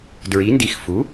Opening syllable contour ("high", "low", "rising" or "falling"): rising